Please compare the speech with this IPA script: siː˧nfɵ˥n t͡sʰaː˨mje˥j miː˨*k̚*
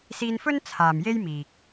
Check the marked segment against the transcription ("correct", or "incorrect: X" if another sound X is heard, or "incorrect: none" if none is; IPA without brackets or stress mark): correct